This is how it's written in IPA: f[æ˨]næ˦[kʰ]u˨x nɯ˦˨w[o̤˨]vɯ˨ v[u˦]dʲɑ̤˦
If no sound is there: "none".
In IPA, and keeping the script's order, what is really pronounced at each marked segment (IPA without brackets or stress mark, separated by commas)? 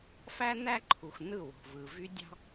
æ˦, ǃʰ, o̤˨, y˦